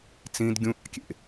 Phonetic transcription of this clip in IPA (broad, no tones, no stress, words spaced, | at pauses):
t͡sĩd ɡʲũʔɑ̰kʲḛ